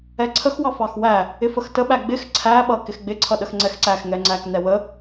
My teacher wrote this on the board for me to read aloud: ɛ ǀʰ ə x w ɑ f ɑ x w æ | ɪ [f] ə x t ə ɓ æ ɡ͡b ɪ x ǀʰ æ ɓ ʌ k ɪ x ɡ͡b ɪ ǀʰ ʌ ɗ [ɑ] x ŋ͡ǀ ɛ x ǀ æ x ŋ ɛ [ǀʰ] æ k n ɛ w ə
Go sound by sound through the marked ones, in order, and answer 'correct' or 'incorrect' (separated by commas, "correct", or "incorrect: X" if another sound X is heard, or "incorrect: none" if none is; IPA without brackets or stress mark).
correct, incorrect: ə, incorrect: ŋ͡ǀ